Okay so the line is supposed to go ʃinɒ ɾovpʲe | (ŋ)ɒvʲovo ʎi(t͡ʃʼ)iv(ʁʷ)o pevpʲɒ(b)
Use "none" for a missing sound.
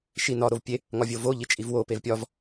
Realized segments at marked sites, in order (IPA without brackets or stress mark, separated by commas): ŋ, t͡ʃʼ, w, v